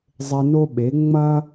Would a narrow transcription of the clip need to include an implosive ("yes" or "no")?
yes